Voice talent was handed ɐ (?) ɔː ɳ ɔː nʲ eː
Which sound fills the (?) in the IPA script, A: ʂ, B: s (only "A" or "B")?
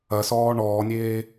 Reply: B